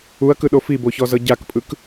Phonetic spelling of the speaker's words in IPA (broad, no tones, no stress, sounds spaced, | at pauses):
u ɐ̯ k ɯ ɗ o f i b o ç ɔ z ɤ ɟ a k pʼ ɯ k